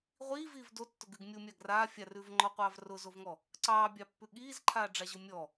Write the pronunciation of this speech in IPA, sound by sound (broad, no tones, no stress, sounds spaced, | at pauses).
ʁʷ iː v iː v d o tː ʊ ɡ ʉ ɡ mʲ o mʲ a ɡ r aː fʲ a r ʉ v ŋ͡ǃ ɔ qʷ ɑː v r ʊ z o v ŋ ɔ | ǀ ɑː bʲ ɑ pː ʉ ɠ iː z ǃʰ aː ɖ͡ʐ a ʑ ʊ mʲ ɔ